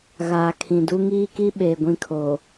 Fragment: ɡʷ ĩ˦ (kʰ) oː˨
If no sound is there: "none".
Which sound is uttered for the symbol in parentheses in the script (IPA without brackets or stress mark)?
kʰ